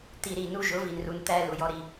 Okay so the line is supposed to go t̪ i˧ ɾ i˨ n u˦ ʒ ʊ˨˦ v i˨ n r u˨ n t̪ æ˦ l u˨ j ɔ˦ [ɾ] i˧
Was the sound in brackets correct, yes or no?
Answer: yes